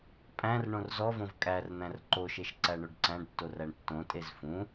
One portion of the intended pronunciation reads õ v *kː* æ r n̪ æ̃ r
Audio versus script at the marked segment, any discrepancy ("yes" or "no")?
yes